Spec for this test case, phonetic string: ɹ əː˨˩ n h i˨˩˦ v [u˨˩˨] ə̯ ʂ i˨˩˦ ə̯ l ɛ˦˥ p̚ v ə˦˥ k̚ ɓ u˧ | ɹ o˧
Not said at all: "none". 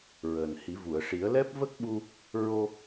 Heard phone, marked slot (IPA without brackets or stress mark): u˨˩˨